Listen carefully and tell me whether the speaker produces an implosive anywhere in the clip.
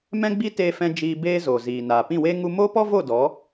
no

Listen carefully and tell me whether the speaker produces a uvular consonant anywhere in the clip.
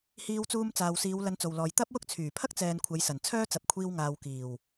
no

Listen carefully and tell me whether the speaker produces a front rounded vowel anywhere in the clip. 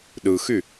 yes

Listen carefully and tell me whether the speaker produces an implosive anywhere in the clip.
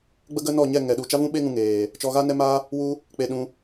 yes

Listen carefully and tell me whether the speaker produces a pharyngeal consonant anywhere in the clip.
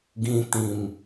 no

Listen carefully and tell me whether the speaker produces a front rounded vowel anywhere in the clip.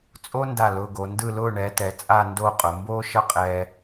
no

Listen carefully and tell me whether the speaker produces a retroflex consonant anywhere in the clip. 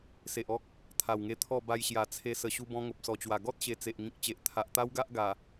no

